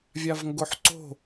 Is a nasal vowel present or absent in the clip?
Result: absent